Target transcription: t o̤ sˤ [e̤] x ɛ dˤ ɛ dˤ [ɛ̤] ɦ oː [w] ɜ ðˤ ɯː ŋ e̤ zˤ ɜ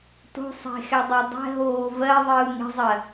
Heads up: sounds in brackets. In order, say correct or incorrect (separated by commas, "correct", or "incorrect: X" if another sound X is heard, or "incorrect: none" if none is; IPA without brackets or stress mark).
correct, correct, incorrect: v